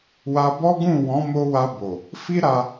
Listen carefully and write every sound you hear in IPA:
wa˧bɔ˦ɡũ˦˨ wɔ̃˨˦mo˧wa˧ bo˨ | fi˦ɾa˧

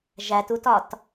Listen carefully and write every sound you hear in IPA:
ʒætutɒt

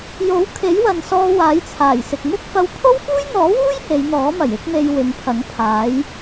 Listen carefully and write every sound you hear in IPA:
jo˨˥wkʰe˨˥j wɐ˨nsɔː˧ waː˨˥jt͡sʰaː˨˩jsɪ˨k̚ mʊ˥k̚fɐ˧w pʰo˥wfuː˥jn̪ɔː˨˥wuː˥j he˨˧jn̪ɔː˨˥mɐ˨˩j ɪ˥k̚me˧j wɪ˨˧ŋpʰɐ˨˥ŋpʰaː˨˥j

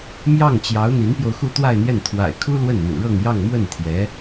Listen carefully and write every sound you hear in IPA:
mjɑ˥˩ŋt͡ɕjɑ˧˥ʊ̯ n̪i˧˥npjo˧ʊ̯xu˥˧ t̪wa˥˧ɪ̯n̪jɛ˥˩n t̪ʰwa̰˨˩ɪ̯kʰu˥ lwə˥˩nn̪ṵ˨˩ɻɤ˥˧ŋ jɑ˥˧ŋmwə˥˩nt̪ʰjɛ˧˥

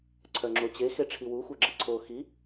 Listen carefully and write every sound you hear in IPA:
ǀʰœŋ͡ǁot͡ɕe xeʈ͡ʂʰiwu xʷœɡ͡ǁəǀʰo xi

